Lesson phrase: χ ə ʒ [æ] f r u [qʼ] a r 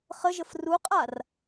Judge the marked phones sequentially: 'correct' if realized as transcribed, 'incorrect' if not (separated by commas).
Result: incorrect, correct